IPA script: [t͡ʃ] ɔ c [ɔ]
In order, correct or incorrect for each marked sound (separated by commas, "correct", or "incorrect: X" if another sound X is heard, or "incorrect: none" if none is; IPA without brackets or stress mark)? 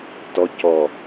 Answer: incorrect: t, correct